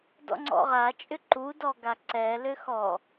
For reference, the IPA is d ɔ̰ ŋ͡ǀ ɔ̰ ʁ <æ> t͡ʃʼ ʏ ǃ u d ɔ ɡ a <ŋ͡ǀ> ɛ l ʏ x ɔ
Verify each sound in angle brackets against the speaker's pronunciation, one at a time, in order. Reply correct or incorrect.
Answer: incorrect: a, incorrect: ǀ

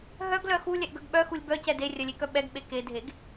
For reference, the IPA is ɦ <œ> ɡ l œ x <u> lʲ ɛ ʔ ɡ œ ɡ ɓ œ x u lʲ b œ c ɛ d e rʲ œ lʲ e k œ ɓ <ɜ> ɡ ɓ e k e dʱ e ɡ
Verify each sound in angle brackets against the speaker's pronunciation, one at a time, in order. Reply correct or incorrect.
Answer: correct, correct, incorrect: ɛ

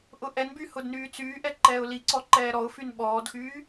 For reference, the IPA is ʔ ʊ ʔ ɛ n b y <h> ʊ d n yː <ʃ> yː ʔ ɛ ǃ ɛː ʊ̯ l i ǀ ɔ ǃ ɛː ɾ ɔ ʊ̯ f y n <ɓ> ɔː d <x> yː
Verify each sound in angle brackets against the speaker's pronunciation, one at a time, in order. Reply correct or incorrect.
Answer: correct, incorrect: t͡s, correct, correct

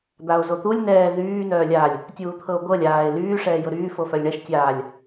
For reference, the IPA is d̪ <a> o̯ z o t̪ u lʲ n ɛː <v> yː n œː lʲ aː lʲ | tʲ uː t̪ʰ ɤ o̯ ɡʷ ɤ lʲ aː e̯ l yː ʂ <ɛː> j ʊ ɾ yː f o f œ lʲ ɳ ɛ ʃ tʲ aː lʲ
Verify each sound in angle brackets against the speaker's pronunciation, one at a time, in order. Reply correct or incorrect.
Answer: correct, incorrect: ð, correct

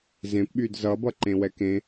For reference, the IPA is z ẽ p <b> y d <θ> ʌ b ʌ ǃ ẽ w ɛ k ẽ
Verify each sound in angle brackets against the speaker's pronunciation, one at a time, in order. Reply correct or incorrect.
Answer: incorrect: ɓ, incorrect: z

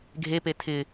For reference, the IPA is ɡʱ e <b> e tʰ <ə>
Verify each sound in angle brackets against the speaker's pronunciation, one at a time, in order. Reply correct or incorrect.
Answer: incorrect: p, incorrect: ɪ

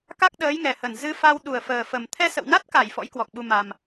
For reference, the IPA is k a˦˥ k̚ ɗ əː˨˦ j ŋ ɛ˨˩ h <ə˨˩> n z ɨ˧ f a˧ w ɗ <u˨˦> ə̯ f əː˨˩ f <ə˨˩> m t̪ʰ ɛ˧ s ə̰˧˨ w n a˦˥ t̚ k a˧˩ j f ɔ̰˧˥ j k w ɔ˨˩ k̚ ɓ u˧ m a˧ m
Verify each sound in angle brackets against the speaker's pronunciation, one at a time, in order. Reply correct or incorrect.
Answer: correct, incorrect: u˨˩, correct

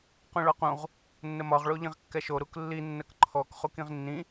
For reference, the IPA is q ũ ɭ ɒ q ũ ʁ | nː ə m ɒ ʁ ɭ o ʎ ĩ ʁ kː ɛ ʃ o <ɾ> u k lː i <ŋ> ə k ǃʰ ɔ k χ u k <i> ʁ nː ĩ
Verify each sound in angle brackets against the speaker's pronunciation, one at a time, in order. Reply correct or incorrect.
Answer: correct, incorrect: nː, incorrect: ĩ

